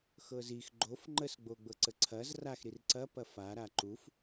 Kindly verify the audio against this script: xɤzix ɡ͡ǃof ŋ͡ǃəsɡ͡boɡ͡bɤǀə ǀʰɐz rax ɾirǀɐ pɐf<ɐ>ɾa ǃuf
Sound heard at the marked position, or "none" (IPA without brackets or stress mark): a